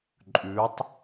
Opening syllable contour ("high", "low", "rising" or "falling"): rising